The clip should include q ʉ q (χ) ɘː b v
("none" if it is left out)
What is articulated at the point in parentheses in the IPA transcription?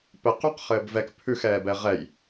χ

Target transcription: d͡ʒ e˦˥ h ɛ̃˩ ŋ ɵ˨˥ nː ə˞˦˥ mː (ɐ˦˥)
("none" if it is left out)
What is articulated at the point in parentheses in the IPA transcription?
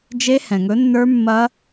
ɐ˦˥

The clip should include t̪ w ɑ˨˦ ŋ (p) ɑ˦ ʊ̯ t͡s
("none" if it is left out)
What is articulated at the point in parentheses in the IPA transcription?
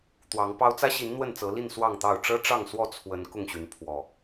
p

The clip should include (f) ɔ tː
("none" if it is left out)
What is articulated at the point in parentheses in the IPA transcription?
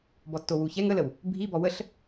b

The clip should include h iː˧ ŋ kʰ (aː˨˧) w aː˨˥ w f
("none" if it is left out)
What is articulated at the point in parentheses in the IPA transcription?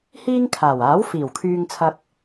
aː˨˩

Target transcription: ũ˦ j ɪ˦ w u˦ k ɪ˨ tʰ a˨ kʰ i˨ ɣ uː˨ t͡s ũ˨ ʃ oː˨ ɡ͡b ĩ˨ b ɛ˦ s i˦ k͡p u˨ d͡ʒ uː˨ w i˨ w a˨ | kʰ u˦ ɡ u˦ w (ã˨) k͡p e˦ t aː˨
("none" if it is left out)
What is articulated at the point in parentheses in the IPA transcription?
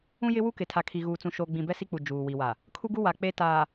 a˨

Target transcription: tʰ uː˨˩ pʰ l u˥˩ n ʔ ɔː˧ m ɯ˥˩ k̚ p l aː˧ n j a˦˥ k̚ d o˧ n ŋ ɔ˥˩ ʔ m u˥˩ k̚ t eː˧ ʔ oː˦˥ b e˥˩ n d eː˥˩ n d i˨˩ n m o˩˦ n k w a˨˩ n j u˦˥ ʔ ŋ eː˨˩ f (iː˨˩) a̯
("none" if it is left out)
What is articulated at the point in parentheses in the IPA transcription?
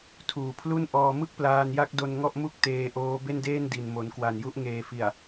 i˨˩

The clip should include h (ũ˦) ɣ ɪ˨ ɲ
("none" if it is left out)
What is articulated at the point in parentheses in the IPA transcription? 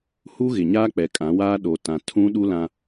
u˦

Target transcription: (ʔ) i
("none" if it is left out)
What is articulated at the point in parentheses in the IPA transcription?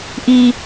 ʔ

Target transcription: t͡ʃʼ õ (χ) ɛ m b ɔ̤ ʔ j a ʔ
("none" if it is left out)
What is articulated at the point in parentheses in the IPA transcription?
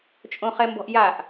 χ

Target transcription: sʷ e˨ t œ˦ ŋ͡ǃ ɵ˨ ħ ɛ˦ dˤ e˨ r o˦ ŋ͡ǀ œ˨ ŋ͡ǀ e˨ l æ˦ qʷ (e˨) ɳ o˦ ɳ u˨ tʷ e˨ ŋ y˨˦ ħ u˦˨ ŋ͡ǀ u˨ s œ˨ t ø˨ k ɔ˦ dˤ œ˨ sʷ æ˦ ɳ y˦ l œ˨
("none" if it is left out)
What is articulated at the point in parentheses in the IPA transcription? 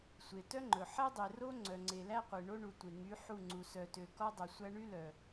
e˨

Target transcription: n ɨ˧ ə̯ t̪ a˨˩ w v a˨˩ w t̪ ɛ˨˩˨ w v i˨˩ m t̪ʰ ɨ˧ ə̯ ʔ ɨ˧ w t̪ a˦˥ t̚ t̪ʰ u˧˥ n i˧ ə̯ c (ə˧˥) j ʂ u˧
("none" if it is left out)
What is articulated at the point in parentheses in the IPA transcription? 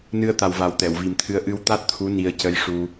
ə˧˥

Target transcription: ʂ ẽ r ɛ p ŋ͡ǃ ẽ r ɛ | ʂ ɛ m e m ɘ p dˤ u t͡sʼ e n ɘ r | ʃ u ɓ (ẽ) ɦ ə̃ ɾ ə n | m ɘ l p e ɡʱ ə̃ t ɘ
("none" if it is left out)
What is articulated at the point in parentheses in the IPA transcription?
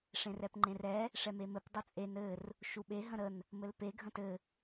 e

